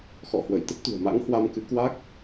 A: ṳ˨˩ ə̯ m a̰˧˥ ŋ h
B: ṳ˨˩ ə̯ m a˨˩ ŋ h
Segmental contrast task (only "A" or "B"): A